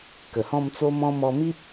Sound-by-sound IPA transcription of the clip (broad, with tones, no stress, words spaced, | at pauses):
kə˨˩hɔ̃˥˧mt͡so˦mɔ̃˦ mɔ˧mi˦p̚